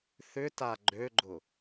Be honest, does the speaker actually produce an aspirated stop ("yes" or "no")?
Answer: no